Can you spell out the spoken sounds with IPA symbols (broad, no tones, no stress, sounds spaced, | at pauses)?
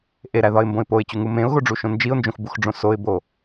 ʔ e ɾ æ ð ɒ ɪ̯ m b õ ɪ̯ p o ɪ̯ t͡ɕ u ŋ u m ẽ ʊ̯ ɣ o ɖ͡ʐ u ʃ õ n d͡ʒ i ʊ̯ n d͡ʒ õ x b u x ɖ͡ʐ õ s o ɪ̯ b o